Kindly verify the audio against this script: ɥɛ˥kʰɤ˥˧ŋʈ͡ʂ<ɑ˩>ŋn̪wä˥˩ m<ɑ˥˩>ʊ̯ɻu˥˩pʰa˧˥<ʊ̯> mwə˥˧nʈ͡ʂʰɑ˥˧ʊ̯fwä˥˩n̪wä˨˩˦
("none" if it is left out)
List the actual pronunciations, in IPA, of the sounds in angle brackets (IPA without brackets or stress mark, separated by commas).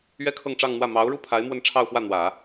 ɑ˥˧, ɑ˧˥, ɪ̯